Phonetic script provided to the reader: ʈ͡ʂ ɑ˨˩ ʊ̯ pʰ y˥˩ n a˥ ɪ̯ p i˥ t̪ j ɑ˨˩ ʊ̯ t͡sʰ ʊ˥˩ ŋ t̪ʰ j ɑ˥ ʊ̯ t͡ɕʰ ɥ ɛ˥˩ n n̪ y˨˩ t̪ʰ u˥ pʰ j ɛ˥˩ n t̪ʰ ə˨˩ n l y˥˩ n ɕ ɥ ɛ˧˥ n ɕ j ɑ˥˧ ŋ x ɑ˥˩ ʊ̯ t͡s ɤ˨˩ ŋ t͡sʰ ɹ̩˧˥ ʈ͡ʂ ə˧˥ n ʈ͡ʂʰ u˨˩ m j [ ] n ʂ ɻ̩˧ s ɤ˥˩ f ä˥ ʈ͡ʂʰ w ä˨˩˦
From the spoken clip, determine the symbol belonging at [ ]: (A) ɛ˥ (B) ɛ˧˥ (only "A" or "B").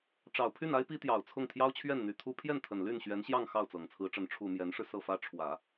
B